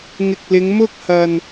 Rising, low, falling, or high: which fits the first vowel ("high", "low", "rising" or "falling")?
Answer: low